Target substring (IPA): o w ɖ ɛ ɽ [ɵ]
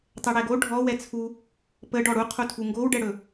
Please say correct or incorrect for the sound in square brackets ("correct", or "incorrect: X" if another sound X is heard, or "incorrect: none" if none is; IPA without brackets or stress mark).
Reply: correct